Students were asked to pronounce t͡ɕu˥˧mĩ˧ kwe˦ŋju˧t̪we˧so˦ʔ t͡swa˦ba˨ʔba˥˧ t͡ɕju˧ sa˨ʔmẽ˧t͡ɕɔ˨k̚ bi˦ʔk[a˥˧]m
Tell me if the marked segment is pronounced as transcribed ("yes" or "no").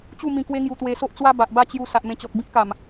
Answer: no